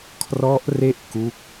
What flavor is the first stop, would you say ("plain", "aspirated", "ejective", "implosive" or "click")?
aspirated